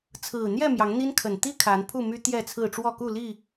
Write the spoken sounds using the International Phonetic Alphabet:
t͡sʰ ɹ̩˨˩ n̪ j ɛ˥˨ m j ɑ˨˦ ŋ n̪ i˦ n kʰ ə˨˩ n t̪ i˦ kʰ a˨˦ n pʰ u˥˨ m y˦ t̪ j ɛ˥˨ t͡sʰ ɹ̩˥˨ ʈ͡ʂ w ɔ˥˨ k u˥˨ l i˥˨

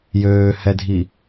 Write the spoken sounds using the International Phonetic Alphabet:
j øː h ɛ dʱ i

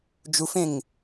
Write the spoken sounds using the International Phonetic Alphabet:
d͡ʒ u f ẽ ŋ

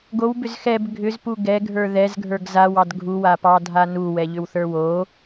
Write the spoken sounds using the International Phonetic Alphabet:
ɡ o w b ʏ z x ɛ b ɡʱ ʏ z p u ɡ ɛ ɡʱ ə˞ ð ɛ z ɡʱ ə˞ ɡ z a w ɑ d ɡʱ u w a p ɑ dʱ a n u w ɛ ʎ ʏ w θ ə˞ w o

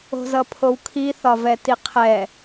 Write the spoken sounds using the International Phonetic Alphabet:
o̤ z ʌ pʰ o w kʰ i θ ɒ v ɛ t i qʰ ɛ

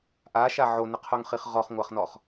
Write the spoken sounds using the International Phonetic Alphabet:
ʔ a ʃ a ʕ o n ɪ qʰ o ŋ χ i χ ʁ ɔ χ ŋʷ a χ n ɔ χ

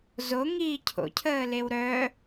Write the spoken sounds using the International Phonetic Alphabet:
z o ŋ iː cʰ o̰ cʰ əː l e w ɾ œ

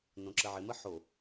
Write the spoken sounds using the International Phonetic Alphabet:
n õ ǁ ə ʕ ɪ m ə ħ o

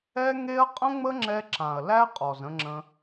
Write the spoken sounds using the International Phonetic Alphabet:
ɛ˦ ŋ e˦ ɐ̯ qʼ ə̃˦ ŋ͡m ə˦ ŋ͡ǁ ɛ˧ ǁ ã˨ ɐ̯ l æ˦ qʼ ɔ˨ z ə̃˧ ŋ͡ǁ ə̃˧

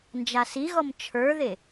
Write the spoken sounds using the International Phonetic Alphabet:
n d͡ʒ a s i ɣ ɔ m t͡ʃʰ ə˞ ð e

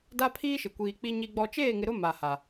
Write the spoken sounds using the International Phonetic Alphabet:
d a˦ pʰ iː˦ ʃ ɪ˨ kʷ iː˨ k͡p i˨ ɲ i˨ ɡ͡b ɔ˨ t͡ʃ eː˦˨ ŋ ɪ˨ ɾ ʊ˦ m a˨ h a˨

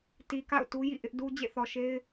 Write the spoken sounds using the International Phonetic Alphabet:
t i˨ k a̰˦˨ ʊ̯ t u˦ j ḭ˦˨ ʔ ɪ˦ ʔ d u˦ d͡ʑ ḛ˦˨ θ ɔ˨ ʃ e˦ ɪ̯

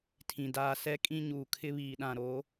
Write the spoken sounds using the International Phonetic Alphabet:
tʰ ĩ˨ d aː˦˨ s ɛ˦ kʼ ĩ˦ ɲ uː˨ kʰ ɪ˦ β iː˨ ɗ ã˨ ɾ o˨˦

